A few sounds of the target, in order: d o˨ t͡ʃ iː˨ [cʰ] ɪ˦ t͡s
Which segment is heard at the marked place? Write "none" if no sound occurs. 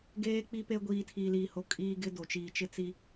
t͡ʃ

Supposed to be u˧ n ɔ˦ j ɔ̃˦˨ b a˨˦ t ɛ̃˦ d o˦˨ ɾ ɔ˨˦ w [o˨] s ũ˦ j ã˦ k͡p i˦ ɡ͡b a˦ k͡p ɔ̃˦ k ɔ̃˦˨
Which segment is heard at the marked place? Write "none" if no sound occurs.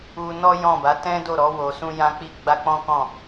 o˧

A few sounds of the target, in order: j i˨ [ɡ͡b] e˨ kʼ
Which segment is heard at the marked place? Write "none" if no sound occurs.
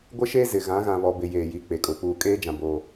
k͡p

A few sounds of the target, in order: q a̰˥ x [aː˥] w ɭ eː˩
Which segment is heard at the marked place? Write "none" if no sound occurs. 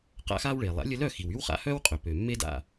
aː˥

